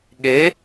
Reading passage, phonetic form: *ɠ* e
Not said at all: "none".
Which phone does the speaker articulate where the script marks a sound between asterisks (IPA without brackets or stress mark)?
ɠ